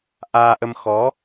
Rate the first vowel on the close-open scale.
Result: open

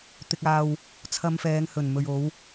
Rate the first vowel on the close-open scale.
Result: close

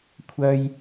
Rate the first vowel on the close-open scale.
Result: open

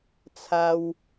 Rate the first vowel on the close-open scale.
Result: open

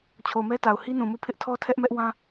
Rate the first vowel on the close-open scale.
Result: mid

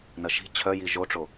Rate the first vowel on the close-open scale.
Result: open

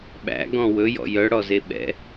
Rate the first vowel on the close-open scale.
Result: open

